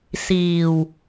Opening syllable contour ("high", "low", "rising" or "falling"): low